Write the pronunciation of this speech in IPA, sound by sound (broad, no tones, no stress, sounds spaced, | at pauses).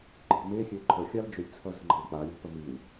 ǃʼ i̤ m e xʲ ø ǃʰ ə xʲ a l d͡ʒ ø lʲ t͡sʰ ʌ z ə̤ ŋ͡ǃ ə̤ l k͡p a lʲ a̤ p ə m i w